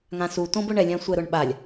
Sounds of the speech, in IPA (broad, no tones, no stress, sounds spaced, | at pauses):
ŋ ã s u t õ b ʊ ɳ ɛ lʲ ã sʷ ɛ ɾ ʊ ɳ ɓ a lʲ